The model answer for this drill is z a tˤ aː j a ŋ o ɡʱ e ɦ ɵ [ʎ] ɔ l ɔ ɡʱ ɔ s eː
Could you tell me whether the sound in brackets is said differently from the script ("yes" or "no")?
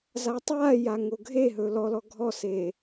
yes